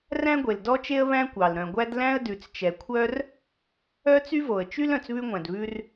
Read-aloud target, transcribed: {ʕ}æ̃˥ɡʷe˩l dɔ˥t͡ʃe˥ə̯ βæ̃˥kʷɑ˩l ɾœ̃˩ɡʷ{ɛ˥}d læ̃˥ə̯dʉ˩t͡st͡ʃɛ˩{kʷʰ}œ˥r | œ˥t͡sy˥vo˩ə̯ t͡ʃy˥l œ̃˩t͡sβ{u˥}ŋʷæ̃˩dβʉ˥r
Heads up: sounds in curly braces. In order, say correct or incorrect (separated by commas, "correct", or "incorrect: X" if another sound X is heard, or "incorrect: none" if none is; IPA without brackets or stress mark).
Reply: incorrect: r, incorrect: æ˥, correct, incorrect: ʉ˥